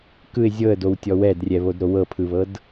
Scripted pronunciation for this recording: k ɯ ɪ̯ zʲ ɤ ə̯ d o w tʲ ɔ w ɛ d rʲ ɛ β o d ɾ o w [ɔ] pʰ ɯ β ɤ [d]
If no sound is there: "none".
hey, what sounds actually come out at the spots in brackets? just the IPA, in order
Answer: ɤ, d

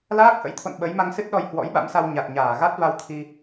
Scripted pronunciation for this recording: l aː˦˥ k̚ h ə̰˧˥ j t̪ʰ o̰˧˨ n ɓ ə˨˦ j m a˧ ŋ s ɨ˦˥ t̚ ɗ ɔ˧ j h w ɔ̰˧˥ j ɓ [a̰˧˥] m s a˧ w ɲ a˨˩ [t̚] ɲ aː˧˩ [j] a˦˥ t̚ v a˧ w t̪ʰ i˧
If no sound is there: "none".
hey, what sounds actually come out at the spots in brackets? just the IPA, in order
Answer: a̰˧˥, t̚, ɣ

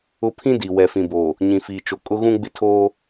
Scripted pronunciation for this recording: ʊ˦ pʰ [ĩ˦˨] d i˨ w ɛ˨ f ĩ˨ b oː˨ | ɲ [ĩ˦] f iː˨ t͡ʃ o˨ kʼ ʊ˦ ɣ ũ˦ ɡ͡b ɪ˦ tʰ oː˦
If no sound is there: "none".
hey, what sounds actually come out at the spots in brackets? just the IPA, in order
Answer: ĩ˦, ĩ˨

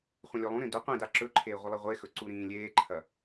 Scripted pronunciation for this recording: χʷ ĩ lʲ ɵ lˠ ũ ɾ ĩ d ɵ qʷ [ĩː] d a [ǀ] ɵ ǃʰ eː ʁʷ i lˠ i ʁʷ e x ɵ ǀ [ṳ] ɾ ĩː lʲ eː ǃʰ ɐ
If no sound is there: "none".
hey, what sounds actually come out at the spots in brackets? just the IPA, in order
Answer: ĩ, ǁ, u

